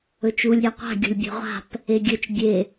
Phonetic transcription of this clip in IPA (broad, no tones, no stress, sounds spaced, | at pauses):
ɵ t͡ʃ u lʲ ɾʲ a qʷ a̤ ɡʲ o̤ lʲ bʲ ɛ̤ ʁʷ a̤ p | e ɡʲ ɵ t͡ʃ bʲ e